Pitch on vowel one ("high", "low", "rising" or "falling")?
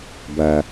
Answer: low